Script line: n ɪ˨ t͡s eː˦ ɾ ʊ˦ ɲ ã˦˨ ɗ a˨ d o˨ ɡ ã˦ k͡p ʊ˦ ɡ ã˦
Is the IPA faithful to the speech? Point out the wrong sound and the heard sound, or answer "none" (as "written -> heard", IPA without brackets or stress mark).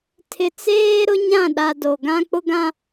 n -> tʰ